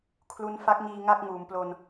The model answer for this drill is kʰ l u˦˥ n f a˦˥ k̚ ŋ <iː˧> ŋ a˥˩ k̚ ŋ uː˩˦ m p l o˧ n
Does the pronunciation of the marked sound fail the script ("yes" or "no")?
no